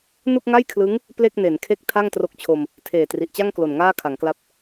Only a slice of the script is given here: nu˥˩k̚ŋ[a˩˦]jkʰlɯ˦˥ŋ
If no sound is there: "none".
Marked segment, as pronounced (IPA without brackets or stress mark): a˥˩